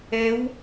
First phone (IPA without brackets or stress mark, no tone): ɛ